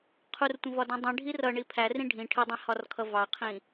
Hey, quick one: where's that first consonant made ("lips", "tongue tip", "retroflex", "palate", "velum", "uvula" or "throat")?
uvula